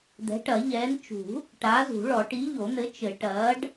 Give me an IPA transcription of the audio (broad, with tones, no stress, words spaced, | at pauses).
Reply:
d̪ɛ̤˨˥ʈɐ˨˩˦ʎɛː˨˥n t͡ʃṳ˨˩˦ | ʈaː˨˥zṳ˨˩˦ɭɔ˨˩˦ ʈi˨˥ʎo˨˩˦n̪ɘ˨˥ t͡ʃɘ˨˩˦ ʈɐː˨˥ɖ